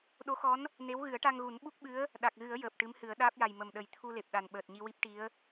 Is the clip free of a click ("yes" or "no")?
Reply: yes